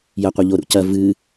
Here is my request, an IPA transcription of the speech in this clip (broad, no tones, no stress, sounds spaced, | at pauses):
j ɐ qʷ ɐ ʎ o ɾ ṵ c ɐ v ɨ